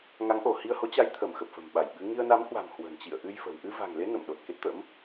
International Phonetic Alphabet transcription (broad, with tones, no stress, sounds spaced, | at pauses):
ŋ a˨˦ ŋ ʔ o˧˩ h i˧ ə̯ h o˨˦ t͡ɕ a˧ j t̪ʰ ə˧˩ m x ə˨˩ p̚ f ə̤˨˩ m ɓ a˧˩ j ɓ ɨ˨˦ ŋ i˧ ə̯ n a˨˦ m h w a̤˨˩ m h w ə̤˨˩ n t͡ɕ ḭ˧˨ ə̯ ʔ ɨ˧ j f ə̤˨˩ w ʔ ɨ˧ v a̤˨˩ ŋ l e˨˦ n ə̰˧˨ m ɗ o˨˩ t̚ k e˦˥ t̚ t̪ ə̰˧˥ m